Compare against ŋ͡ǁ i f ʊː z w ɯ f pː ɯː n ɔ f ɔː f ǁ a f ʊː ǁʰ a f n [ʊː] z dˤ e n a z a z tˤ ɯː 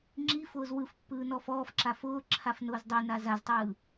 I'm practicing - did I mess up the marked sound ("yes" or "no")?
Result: no